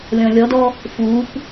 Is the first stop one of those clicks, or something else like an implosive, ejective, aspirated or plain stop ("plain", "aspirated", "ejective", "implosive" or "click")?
plain